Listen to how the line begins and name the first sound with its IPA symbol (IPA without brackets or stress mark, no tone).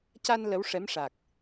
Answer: c